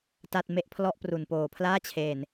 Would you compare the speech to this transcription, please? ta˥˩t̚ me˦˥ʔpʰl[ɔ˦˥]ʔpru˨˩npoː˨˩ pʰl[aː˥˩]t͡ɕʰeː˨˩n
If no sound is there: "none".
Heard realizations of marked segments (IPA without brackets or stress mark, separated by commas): ɔ˥˩, aː˥˩